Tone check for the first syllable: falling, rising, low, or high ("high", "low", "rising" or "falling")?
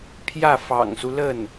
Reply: falling